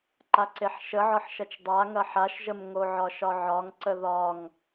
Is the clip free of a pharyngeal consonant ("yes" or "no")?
no